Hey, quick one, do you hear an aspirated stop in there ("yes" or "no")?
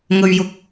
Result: no